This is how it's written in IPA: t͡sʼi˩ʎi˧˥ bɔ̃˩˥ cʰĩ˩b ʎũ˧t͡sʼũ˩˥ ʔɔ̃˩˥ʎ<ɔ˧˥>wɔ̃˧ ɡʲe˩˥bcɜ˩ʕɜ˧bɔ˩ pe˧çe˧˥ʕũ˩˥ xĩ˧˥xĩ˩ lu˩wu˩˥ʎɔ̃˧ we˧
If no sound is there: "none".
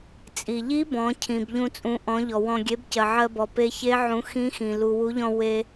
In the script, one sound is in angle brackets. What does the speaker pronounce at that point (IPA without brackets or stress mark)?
ɔ˩